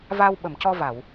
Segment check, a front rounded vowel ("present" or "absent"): absent